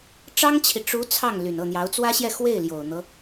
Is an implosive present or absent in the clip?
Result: absent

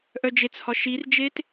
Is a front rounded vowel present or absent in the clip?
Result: present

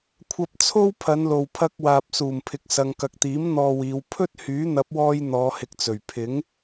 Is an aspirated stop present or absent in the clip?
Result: present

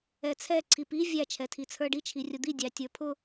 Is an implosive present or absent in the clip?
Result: absent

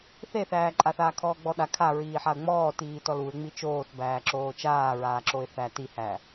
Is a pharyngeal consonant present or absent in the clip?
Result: present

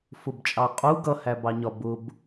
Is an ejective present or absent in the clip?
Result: present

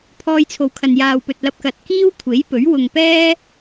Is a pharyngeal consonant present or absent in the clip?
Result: absent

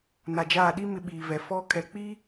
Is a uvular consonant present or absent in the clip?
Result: absent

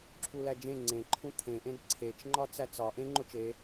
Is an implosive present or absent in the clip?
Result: absent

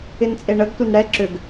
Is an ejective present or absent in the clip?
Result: present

